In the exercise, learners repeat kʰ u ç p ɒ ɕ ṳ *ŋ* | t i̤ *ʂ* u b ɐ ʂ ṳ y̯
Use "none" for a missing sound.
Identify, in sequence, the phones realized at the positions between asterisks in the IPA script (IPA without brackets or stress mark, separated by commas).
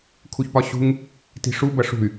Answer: ŋ, ʂ